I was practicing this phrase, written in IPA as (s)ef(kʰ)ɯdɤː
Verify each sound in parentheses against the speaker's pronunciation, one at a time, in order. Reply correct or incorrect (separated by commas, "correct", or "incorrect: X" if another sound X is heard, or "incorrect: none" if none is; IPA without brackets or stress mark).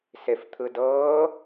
correct, incorrect: t̪ʰ